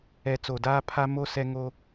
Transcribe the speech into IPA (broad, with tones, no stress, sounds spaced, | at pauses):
ɛ˨ t͡s o˨ d aː˦ pʰ a˦ m o˦ s ɛ˦ ŋ o˦